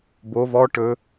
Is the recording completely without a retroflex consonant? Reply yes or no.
no